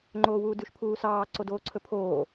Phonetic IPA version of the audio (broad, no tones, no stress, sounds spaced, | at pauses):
ŋ͡ǃ oː w uː d ʉ ʃ pʰ uː s ɑː ǀ o d oː ǀʰ ɵ pʰ oː